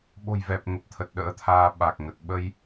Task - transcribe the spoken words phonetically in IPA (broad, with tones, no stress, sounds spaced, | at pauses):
ɓ o̤˨˩ j v ɛ˨˩ p̚ ŋ ə˨˩ p̚ t̪ʰ ə˨˩ t̚ ɗ ə̰ː˧˥ t̪ʰ aː˧ ɓ a˨˩ k̚ ŋ ə˨˩ t̚ ɓ ə˧ j